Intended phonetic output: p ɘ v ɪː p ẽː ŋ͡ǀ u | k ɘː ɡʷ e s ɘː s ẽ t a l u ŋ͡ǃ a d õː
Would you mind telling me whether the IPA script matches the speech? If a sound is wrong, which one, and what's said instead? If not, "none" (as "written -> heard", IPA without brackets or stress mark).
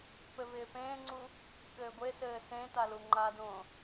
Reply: none